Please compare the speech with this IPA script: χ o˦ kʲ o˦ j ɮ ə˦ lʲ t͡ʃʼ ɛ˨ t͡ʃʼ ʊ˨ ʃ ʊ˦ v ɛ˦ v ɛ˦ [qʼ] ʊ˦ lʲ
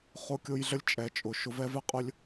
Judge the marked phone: correct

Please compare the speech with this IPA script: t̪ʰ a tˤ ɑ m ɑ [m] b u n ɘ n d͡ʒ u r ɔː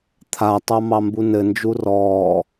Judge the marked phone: correct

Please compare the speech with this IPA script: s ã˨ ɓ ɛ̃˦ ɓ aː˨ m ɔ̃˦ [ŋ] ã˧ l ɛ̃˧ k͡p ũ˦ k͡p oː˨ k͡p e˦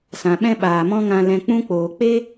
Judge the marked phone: correct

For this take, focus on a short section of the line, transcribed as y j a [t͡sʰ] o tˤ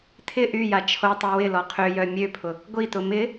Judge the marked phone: incorrect: t͡ʃʰ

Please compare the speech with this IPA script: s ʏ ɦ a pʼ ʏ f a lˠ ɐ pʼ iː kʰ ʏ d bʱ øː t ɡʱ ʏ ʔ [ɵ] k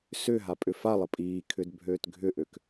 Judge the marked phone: incorrect: ø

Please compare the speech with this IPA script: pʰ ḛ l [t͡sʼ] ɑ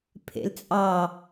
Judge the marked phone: correct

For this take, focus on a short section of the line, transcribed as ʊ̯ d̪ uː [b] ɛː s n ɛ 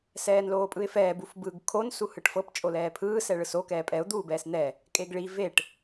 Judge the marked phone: correct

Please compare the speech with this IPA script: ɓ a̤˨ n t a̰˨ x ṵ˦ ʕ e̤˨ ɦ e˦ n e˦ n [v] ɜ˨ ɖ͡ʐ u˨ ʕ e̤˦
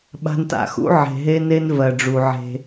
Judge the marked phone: correct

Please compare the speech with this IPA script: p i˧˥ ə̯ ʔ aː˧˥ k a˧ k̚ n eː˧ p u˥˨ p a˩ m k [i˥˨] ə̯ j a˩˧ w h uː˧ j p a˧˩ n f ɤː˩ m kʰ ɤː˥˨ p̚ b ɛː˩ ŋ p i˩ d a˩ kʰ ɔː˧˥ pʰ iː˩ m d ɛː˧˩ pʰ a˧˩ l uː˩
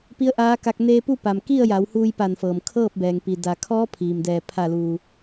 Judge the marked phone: correct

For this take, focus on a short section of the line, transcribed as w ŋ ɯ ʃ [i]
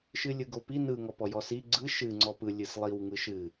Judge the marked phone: incorrect: ɨ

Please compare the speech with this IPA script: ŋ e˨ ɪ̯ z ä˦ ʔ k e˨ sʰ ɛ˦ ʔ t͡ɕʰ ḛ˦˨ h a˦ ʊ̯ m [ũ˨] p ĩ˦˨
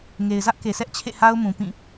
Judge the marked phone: correct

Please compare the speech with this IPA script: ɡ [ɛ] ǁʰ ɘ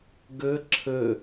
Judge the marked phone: incorrect: ɘ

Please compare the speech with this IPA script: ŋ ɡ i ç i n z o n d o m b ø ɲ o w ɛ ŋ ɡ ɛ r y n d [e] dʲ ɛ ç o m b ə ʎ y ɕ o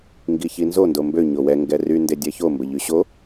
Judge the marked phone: correct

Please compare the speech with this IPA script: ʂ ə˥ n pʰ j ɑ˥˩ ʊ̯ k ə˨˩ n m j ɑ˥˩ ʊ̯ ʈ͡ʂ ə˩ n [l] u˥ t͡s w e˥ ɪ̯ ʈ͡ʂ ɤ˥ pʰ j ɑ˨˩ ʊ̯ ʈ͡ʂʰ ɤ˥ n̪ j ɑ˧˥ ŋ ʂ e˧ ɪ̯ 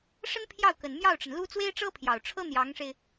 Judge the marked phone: correct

